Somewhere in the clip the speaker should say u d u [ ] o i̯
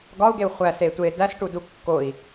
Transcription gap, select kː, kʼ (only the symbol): kː